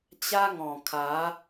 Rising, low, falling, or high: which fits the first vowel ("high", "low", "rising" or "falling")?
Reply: high